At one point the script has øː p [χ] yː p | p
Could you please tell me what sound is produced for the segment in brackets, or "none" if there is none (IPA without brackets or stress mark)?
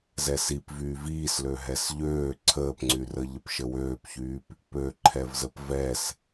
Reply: ç